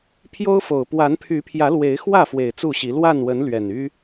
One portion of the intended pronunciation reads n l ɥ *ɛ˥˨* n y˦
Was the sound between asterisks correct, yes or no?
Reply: no